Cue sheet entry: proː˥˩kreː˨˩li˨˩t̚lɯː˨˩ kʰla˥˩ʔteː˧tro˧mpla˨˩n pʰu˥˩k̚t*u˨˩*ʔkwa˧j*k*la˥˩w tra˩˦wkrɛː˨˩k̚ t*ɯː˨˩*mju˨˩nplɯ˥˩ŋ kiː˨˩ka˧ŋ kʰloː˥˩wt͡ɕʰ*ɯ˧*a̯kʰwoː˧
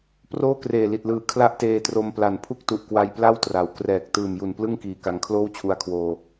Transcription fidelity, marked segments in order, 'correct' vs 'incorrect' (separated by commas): correct, incorrect, correct, incorrect